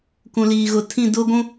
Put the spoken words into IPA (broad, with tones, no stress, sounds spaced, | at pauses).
k ũ˨ l iː˨ ɣ ʊ˨ tʰ ĩ˦˨ d ʊ˦ ɡʷ ũ˦